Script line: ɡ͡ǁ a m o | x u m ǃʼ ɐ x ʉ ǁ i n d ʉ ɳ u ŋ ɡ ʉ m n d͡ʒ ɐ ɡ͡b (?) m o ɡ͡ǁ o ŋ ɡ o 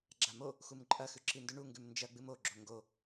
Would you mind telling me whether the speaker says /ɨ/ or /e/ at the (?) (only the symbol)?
ɨ